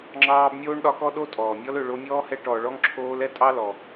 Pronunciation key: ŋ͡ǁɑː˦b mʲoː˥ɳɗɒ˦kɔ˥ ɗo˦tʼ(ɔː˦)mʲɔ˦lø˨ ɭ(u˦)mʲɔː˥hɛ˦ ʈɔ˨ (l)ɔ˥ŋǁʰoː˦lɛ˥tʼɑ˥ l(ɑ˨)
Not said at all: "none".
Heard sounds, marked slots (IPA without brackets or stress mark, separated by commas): ɔː˩, o˦, ɭ, ɔ˨